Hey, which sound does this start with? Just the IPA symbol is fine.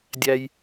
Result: dʲ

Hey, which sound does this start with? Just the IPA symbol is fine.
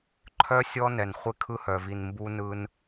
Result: ǃʰ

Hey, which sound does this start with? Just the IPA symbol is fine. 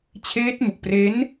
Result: t͡ɕʰ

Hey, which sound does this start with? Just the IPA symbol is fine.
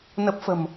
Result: n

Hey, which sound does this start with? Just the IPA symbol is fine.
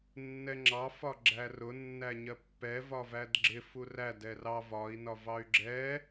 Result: nː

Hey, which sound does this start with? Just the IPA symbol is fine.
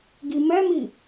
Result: ɡ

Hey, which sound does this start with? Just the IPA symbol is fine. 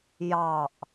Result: j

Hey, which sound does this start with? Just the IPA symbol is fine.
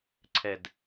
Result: ǀʰ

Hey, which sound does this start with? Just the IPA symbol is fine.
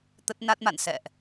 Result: t̪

